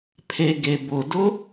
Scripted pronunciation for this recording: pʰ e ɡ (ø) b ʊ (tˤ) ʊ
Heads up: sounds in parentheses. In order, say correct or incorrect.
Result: incorrect: e, incorrect: d

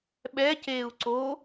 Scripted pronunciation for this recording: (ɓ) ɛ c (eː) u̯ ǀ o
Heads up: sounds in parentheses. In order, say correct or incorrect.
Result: correct, correct

